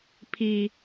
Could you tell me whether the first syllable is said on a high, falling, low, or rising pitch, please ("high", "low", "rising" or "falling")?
high